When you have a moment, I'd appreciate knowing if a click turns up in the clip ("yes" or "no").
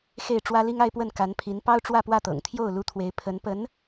no